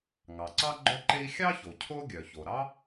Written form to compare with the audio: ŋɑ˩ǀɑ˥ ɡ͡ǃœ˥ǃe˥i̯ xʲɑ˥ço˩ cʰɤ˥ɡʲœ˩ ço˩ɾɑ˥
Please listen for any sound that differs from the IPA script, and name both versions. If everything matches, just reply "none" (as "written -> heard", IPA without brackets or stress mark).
ɤ˥ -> o˥